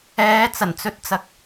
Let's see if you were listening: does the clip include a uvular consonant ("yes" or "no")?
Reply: no